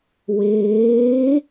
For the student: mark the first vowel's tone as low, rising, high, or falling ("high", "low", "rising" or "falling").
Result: rising